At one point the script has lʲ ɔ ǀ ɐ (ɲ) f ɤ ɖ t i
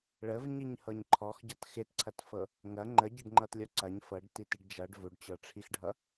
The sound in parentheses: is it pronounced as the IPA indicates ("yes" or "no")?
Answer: yes